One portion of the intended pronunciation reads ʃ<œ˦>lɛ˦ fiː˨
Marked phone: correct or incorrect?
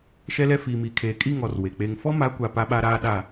incorrect